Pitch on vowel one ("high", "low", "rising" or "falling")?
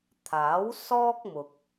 rising